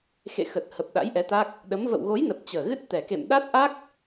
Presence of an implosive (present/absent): present